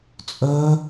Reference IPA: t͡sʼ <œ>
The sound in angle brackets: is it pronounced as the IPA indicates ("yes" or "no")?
yes